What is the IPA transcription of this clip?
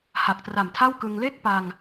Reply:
ha˨˩k̚tra˨˩mtʰa˥˩wkɯ˧ŋ le˥˩k̚pa˧ŋ

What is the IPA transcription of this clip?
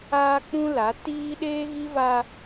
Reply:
aː˦k͡pũ˦la˨˦ tiː˦ ɗeː˦ɣi˦va˦

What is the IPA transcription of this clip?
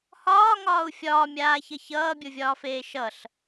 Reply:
hɒːŋɒːu̯ fʲɒːmʲaːçʌ çʌːbʲovʲɒːfeː ʃʌɬ

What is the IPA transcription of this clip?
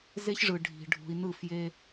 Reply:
ze˦çʐɯ˨ ɖʱi̤˨ ɖʱṳ˨i̯nɯ˦˨fje˦

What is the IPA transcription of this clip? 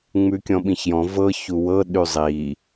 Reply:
ŋ͡mʉkʲɔ̃ɓĩçjɔ̃ vɤ çuwɤ ɗʉzˤi

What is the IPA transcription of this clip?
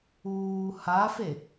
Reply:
uː hafe

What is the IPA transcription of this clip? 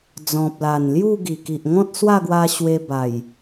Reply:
d͡zɔ̃˨p̚la˨˩nlju˥˧ ɡi˨˩ki˨ʔ ŋɔ̃˦t̚swa˥˧ɡwa˧ ɕwe˧ba˨˩j

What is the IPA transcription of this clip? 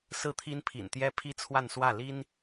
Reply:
sɹ̩˥˩ t̪ʰi˥npʰḭ˨˩nt̪jɛ˥ pʰi˥t͡sʰwa˥˧nswä˥˩ li˥n

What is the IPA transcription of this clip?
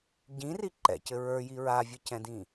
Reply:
ɟĩri ǃɛ̰cɘ ɹə˞ji ɹavʲɨcɛ̃dĩ

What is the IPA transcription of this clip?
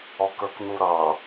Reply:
ɔkə˞knuɾʌ

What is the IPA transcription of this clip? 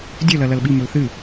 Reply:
dʲɵlɐ lɐlɓimɵl θɨ

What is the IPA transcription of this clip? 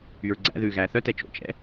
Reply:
yɹɡ͡ǀæ̰ ðʉːɣæːθœ tɛt͡ʃo̰ t͡ʃɛ̰

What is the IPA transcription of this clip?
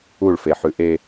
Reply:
uɭfeħʉ ʔe

